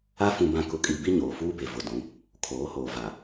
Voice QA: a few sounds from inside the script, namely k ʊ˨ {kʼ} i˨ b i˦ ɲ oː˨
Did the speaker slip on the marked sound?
no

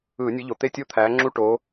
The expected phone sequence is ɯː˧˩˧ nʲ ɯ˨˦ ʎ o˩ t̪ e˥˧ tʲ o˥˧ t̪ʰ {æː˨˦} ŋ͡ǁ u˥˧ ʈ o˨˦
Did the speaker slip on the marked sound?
no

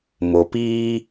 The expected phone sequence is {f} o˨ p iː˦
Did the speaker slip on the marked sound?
yes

